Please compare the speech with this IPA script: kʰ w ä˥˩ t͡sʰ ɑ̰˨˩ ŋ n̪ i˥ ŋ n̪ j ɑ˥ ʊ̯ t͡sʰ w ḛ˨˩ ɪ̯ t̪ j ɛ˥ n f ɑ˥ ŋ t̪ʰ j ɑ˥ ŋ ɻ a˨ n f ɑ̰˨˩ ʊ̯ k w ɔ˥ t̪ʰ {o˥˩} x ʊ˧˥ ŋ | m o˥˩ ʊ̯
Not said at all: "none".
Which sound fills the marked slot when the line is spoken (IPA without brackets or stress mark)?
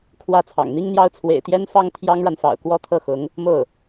ɤ˥˩